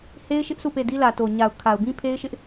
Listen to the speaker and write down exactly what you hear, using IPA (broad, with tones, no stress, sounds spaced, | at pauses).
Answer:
h e˦ ɪ̯ ʃ ɪ˦ ʔ s u˦˨ p e˦˨ d i˦ l ä˨ t o˨ ɲ a˨ ʊ̯ kʰ a˨ ʊ̯ b ĩ˦ pʰ e˦ ɪ̯ ʃ ɪ˦ ʔ